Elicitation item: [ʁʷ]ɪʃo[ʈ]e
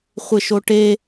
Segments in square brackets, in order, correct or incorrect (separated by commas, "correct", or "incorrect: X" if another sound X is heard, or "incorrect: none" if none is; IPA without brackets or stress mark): incorrect: χʷ, correct